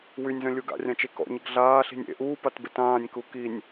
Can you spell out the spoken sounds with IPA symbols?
wynʲzœ̃lʲu ɡa̰rʲãt͡ʃe kɔ̰ɲəɡ ɮaːɬi̤nʲ ḛ ʔuːpatbet ãːnʲku kinʲ

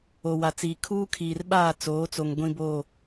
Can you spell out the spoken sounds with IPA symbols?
o˨wa˨t͡siː˨ kʰuː˦kʰiː˨rɓaː˦˨ t͡soː˨˦t͡so˨ŋ ɡʷĩ˦bo˦˨

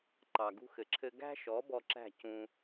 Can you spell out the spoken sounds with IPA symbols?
ǃɑ˨ɡṳ˧xɘ˨ǁʰɘ˧ ɡæ̤˦ʃɔ˨˦ bɔ˧ǁæ̤˦˨ cũ˧

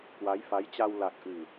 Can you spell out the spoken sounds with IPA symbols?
kwa˨˦jfa˨˦jt͡ɕa˧w la˨˩k̚ʔɨ˨˩

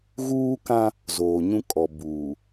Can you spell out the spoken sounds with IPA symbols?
ɣuː˦kã˦ | zoː˨ɲũ˦kʼɔ˨ buː˨

